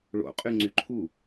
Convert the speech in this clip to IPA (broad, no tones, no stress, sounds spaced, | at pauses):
ɭ o̰ qʼ y ŋ͡ǀ y ǃʰ u